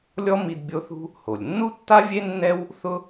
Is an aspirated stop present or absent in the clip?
absent